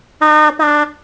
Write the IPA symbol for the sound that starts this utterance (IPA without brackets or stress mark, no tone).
aː